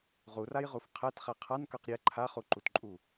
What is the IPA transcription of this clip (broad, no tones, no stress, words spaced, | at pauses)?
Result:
ʁurajʁuf qʰɛtχɛ qʰankə˞q ɾʲɛ ǃʰaχuǃutǃʼu